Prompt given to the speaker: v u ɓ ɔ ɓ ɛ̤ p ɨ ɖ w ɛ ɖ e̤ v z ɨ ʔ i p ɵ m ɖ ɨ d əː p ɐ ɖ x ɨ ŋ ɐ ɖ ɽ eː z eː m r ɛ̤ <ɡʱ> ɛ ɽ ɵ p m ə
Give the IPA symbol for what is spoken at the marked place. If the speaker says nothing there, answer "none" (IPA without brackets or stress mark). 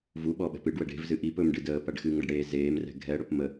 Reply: ɡʱ